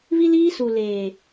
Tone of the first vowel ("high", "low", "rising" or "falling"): high